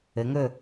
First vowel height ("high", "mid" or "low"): mid